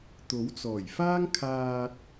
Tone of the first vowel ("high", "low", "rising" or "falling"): rising